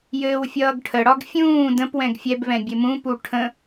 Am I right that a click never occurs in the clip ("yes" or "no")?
yes